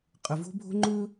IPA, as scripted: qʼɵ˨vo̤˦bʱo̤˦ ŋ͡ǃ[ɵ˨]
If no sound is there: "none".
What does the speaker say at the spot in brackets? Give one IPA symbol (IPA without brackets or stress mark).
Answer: ɵ˦